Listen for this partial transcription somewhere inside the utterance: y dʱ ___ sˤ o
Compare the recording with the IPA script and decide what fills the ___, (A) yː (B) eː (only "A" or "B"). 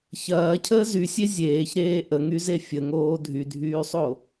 A